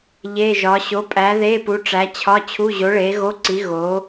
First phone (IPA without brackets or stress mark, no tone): ʎ